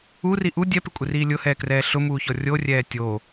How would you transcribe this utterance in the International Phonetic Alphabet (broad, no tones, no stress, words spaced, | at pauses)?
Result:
uri ʔu dʲɛpɪkʷʼɪriː lʲʊhɛːkrɛː ɬʊmuːçɔ rʲorʲɛː tʲo